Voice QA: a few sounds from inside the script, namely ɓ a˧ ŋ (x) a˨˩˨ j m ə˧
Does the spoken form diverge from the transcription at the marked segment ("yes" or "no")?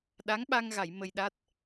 yes